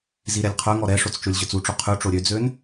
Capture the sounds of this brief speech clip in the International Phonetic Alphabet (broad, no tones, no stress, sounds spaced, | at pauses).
z i ɾ ɛ lʲ qʰ œ ŋ ɔ ɾ ɛ ʂ o t͡s t͡ʃ o lʲ ʑ œ t͡s u ʈ͡ʂ o qʰ ʉ ʈ͡ʂ o ɾʲ ø d͡z ø n